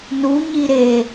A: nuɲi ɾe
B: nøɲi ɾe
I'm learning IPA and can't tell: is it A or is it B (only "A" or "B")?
A